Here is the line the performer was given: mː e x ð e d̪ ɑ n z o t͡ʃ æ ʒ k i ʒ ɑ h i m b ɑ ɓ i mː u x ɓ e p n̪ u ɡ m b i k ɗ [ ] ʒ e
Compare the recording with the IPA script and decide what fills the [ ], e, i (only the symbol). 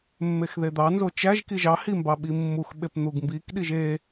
i